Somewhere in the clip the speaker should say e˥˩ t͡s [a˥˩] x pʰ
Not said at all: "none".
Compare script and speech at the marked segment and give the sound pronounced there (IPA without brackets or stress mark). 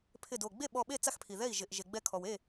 a˥˩